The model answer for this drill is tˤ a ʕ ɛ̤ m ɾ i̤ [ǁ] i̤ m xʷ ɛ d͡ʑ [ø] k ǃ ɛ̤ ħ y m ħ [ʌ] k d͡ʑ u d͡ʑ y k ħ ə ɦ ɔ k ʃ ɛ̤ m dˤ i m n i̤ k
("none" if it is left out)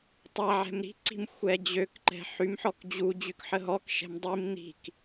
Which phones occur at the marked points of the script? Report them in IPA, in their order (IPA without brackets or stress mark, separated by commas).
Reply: ǀ, ø, ɔ